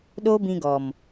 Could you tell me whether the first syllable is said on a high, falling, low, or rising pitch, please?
high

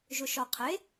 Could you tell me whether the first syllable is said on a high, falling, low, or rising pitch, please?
low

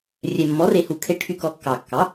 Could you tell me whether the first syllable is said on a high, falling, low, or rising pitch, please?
low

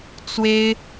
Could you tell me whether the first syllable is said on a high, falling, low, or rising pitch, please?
high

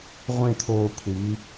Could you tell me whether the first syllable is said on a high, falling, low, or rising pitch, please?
falling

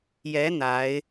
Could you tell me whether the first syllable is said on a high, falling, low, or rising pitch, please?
rising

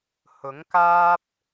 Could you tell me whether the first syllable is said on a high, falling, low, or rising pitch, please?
rising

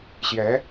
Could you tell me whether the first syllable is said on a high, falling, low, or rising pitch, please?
rising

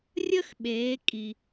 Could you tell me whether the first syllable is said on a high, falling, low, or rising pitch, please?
high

